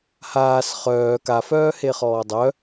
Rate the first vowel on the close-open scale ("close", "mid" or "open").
open